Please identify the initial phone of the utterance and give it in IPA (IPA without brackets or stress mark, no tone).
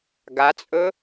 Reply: ɡ